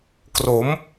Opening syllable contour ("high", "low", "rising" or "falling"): rising